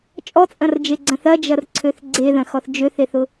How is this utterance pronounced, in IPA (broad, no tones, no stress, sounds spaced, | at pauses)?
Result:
t͡ʃʼ ɔ t͡sʼ ɐ̃ r d͡ʒ e ɡ͡ǀ ɐ̃ θ ɐ d͡ʒ ɐ r ǀʰ ø θ ɡ͡ǀ e ð ɐ̃ x ɔ θ d͡ʒ ø θ e θ ʊ